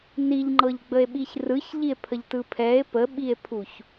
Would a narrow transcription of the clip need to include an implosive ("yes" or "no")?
yes